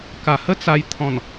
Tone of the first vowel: low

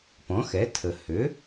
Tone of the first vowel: rising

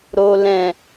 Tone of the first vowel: low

